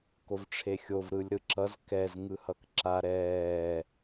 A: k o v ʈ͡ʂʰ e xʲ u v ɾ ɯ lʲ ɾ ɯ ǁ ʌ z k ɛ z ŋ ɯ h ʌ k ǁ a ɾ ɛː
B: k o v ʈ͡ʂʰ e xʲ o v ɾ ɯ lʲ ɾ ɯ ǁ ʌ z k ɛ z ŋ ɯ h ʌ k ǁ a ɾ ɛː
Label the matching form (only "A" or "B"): B